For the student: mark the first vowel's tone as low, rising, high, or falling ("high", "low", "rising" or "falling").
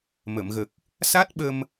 low